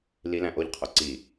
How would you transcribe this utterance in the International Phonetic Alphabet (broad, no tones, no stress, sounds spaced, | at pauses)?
l i l æ̃ ʔ o ʎ qʰ o ǀ i